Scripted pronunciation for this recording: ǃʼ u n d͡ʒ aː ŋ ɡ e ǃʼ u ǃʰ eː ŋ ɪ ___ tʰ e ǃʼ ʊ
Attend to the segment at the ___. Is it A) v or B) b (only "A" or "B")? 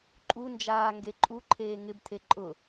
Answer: B